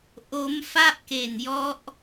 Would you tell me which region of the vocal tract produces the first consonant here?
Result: throat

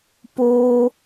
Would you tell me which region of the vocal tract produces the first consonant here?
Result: lips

